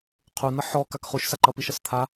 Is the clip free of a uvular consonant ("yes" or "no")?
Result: no